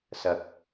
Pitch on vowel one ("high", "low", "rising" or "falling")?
rising